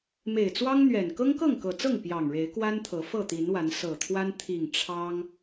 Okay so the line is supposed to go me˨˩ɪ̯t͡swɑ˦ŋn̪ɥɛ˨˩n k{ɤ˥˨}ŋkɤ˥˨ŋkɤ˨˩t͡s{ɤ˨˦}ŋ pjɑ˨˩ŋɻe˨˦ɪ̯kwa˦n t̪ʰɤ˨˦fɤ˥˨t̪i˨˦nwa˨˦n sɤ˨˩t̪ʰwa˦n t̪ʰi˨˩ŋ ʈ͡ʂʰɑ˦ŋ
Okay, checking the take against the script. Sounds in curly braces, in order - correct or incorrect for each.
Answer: incorrect, incorrect

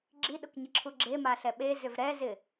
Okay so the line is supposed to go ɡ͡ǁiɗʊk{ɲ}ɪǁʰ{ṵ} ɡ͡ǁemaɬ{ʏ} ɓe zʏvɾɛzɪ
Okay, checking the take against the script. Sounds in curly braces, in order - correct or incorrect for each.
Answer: correct, incorrect, incorrect

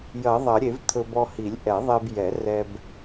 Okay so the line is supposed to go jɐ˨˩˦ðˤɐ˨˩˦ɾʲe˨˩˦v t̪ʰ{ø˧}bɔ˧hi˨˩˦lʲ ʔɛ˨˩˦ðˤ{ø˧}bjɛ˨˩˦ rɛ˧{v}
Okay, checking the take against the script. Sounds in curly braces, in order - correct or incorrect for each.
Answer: incorrect, incorrect, incorrect

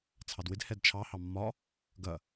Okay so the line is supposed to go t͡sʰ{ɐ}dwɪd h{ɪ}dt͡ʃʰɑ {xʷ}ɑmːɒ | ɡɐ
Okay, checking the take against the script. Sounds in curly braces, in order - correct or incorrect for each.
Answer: incorrect, incorrect, incorrect

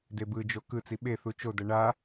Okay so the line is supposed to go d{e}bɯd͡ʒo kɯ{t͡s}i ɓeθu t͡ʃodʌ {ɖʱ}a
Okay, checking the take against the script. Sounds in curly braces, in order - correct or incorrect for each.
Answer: correct, correct, incorrect

